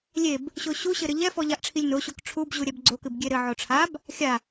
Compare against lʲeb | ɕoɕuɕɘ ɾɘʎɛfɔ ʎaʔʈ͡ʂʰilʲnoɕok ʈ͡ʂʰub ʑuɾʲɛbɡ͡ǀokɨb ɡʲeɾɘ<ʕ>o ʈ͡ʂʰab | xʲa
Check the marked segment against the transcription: correct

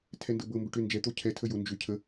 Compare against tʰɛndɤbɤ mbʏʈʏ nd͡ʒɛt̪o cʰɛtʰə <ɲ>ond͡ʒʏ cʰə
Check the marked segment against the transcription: incorrect: j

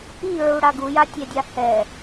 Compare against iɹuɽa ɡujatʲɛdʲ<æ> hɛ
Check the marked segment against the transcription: incorrect: a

